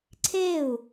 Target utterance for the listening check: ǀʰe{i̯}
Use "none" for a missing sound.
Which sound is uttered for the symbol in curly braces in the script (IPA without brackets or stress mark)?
u̯